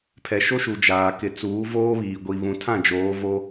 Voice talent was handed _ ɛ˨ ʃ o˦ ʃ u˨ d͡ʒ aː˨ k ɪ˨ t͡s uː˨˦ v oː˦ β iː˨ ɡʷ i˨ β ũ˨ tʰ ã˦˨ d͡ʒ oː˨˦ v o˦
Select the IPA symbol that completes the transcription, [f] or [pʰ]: pʰ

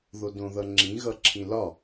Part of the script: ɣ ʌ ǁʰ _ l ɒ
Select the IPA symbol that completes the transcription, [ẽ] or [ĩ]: ĩ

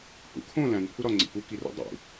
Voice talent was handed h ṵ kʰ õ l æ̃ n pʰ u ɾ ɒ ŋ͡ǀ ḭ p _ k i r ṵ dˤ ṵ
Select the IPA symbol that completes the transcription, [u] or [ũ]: u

